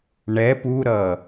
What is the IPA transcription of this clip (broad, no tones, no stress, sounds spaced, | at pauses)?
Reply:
ɳ ɛ p u ɾ ʌ